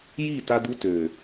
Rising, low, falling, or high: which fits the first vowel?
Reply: falling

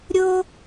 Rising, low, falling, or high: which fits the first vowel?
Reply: high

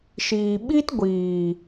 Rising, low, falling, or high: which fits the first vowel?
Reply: low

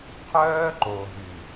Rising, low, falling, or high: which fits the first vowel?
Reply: high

